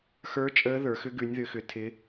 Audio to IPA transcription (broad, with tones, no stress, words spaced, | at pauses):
xə˞˦˥ t͡ʃʼəː˦˥ðə˞˨˦xʏ˦˥ ɡʉ˨˦nʲðʏ˨˦xʏ˨˦tʰɪ˦˥